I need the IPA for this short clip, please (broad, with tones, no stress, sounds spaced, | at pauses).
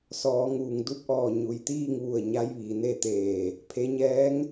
s ɔː˩˧ ŋ uː˩ ŋ d u˧˥ p̚ ʔ ɔː˧˩ ɲ u˩ j t̪ iː˥˨ ŋ ʋ u˧˩ ə̯ ɲ a˧˥ j ʋ iː˩ n e˥˨ t̪ eː˧˩ | pʰ e˩˧ ɲ ɛː˧˥ ŋ